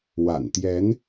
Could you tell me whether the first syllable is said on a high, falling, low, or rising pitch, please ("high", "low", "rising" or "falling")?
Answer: low